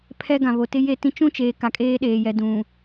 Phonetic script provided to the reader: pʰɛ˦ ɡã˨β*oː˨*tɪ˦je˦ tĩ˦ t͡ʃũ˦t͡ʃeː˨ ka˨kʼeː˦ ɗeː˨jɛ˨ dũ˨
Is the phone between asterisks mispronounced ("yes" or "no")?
yes